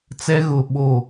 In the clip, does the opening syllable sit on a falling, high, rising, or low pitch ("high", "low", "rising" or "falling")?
high